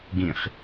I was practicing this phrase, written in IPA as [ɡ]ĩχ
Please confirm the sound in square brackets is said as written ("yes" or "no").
yes